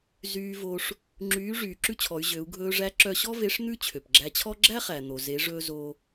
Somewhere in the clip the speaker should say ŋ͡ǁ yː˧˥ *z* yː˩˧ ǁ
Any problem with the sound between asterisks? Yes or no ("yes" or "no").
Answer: yes